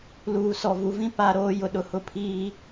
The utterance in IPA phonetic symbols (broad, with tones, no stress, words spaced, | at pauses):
luː˨sɔ˨vu˨˦vĩ˦ pa˦ɾoː˦jʊ˨ ɗʊ˦hʊ˦pʰiː˦